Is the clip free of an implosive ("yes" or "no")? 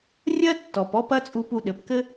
no